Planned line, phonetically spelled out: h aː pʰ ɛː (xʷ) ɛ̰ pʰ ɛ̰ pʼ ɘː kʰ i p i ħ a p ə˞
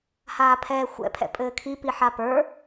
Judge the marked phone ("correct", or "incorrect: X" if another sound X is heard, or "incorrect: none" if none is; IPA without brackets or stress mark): correct